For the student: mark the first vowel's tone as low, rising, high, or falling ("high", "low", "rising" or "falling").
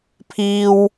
low